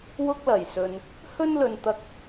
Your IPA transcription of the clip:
w ʊ˥ k̚ l ɐ˨˩ j s ɵ˨ n | h ɵ˥ n l ɵ˨ n t̪ ɐ˧ k̚

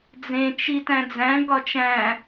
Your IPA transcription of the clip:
d͡z ẽ t͡ʃ i t æ̃ d͡z æ̃ ɳ ɡ ɒ t͡ʃ æ̃

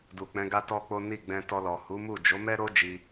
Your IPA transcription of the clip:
d u˨ k͡p ɛ̃˨˦ ɡ a˦ t ɔ˦ k͡p o˦ n i˦˨ ɡ͡b ɛ̃˧ t ɔ˧ l ɔ˨ h u˨˦ m u˦˨ d͡ʒ o˨˦ m ɛ˦ ɾ o˦ d͡ʒ i˧

